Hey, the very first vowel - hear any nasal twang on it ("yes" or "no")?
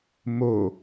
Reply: no